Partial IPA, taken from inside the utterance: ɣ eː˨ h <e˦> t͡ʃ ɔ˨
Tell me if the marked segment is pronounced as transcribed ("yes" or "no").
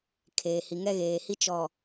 no